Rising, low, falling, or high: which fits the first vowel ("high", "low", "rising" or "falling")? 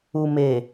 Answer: low